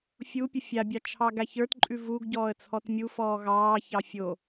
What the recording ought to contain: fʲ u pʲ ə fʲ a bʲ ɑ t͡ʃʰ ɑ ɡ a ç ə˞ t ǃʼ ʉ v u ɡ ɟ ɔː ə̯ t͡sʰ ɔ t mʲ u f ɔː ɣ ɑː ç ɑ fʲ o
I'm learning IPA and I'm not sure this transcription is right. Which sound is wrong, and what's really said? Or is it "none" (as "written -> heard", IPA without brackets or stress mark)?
none